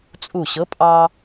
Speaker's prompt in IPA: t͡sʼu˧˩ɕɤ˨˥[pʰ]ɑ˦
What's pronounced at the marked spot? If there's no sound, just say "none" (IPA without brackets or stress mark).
pʼ